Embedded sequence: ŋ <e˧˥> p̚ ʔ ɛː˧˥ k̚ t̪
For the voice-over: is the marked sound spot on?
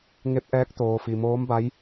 yes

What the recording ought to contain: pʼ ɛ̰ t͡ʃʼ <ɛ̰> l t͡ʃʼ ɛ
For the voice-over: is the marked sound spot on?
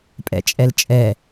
no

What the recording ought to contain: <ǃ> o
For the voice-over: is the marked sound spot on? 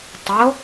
no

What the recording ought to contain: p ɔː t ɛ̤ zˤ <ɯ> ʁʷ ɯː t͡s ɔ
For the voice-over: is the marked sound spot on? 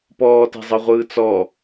yes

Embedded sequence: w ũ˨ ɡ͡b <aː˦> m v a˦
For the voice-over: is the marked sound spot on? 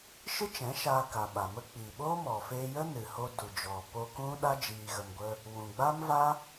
yes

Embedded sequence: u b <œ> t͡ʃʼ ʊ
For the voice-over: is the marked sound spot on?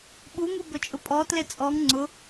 no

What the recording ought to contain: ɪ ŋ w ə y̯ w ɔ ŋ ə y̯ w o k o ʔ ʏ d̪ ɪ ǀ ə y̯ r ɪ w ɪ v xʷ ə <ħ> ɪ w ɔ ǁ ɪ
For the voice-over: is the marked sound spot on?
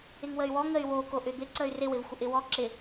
no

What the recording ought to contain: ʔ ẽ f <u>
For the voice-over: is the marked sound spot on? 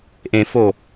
no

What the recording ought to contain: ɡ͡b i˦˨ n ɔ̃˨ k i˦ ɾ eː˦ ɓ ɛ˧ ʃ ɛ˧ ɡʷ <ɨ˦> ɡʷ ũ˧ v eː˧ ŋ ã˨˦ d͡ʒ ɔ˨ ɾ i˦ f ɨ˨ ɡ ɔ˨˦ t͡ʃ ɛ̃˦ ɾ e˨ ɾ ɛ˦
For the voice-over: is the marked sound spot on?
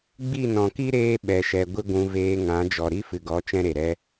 yes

